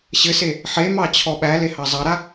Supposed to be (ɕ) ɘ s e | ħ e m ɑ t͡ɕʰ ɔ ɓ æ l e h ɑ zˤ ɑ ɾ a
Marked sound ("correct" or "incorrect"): correct